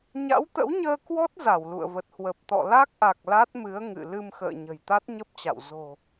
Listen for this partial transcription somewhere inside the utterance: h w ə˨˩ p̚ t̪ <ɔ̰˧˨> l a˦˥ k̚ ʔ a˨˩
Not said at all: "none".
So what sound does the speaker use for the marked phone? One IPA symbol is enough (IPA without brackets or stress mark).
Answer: ɔ̰˧˨